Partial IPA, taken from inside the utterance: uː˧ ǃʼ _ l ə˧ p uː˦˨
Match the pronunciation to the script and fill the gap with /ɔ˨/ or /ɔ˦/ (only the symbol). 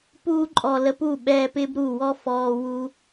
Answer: ɔ˨